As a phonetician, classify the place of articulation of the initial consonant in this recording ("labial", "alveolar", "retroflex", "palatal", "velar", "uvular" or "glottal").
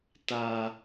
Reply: alveolar